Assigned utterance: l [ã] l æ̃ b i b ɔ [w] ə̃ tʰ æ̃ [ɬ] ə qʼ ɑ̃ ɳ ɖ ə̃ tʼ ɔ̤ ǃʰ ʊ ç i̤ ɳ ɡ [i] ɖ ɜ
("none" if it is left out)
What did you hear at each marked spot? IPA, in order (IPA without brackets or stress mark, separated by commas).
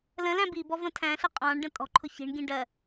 ə̃, v, ɬ, ĩ